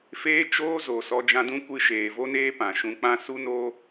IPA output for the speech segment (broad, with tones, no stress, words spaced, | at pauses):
feː˦t͡ʃoː˦zo˨ sɔ˧d͡ʒã˧dũ˦ kʷɨ˧ʃeː˨vo˦neː˦ pã˨ʃũ˧k͡pã˦ su˦no˦